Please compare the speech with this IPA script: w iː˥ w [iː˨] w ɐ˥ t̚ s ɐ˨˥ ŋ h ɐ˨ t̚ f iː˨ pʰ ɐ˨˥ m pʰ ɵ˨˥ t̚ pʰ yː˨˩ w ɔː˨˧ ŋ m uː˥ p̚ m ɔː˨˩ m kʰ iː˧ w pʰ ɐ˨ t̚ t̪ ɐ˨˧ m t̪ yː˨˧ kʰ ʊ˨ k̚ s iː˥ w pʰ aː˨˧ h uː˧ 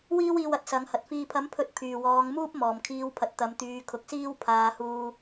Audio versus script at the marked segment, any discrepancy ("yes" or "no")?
yes